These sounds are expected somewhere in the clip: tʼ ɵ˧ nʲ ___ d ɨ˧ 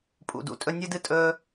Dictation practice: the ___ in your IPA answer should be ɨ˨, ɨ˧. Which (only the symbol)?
ɨ˧